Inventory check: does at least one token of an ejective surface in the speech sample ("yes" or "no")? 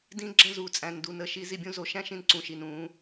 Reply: yes